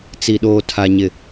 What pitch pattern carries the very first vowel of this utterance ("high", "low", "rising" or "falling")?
low